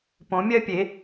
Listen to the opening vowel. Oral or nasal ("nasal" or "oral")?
nasal